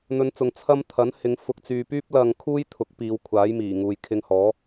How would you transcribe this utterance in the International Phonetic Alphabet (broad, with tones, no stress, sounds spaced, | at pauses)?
n̪ ɵ˨˧ n t͡s ʊ˨ ŋ t͡sʰ ɐ˥ m t̪ʰ ɐ˨˥ n h ɪ˨˧ ŋ f ʊ˨˥ k̚ t͡s yː˧ p yː˥ p̚ l ɐ˧ ŋ kʰ uː˥ j t̪ʰ ʊ˨˥ k̚ p iː˨˧ w kʷʰ aː˨˥ j m iː˨˩ ŋ uː˨ j kʰ ɪ˧ ŋ h ɔː˨˥